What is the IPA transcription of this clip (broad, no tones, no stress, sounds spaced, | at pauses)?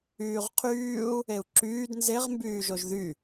yː ʁ qʰ yː u̯ | e u̯ ǁ yː d n z e ʁ m b yː ʒ o ʒ ð y